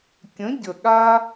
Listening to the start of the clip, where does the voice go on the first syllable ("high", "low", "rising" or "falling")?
rising